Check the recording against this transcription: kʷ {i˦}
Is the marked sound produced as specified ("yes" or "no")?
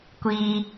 no